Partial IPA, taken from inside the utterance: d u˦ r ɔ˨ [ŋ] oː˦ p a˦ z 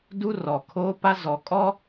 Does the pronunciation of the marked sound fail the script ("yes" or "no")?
yes